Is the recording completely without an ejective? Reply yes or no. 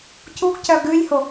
yes